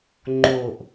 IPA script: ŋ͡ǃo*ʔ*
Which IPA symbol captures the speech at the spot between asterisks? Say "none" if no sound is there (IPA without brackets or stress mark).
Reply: ʔ